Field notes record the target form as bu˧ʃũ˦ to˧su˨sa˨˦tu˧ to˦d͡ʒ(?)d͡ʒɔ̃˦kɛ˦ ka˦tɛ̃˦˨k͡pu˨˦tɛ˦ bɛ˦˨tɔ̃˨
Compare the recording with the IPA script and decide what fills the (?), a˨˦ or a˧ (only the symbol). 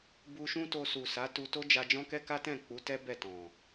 a˧